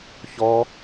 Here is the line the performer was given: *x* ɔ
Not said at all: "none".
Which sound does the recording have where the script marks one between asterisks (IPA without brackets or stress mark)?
ç